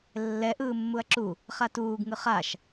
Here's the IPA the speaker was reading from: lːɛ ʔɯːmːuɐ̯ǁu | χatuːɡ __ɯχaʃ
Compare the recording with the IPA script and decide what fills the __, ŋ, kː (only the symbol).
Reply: ŋ